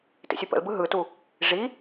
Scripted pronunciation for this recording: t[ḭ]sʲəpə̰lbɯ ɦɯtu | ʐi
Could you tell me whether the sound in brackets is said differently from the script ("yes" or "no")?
no